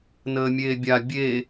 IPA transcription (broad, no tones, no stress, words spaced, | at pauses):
nəːmʲeːbʲa bʲe